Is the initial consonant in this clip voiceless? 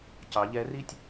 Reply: yes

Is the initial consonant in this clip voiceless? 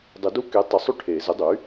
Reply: no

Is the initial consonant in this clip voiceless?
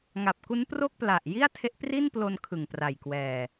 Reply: no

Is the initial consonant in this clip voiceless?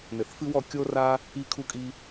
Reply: no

